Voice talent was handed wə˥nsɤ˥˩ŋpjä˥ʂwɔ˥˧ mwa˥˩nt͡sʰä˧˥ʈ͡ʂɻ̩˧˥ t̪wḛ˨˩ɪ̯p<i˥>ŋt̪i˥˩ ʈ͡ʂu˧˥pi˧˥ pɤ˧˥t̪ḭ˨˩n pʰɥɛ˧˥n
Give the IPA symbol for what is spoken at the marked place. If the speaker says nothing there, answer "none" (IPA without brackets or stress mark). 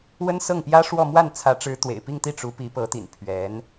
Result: i˥˧